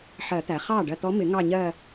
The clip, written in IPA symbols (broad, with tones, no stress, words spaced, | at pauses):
ħɜ˨˩˦t̪æ˩ χɑː˥˩ɖɜ˧˩t̪ɔ˧˥mɪ˨˩˦ ŋɑ˥˧ɲɜ˥˧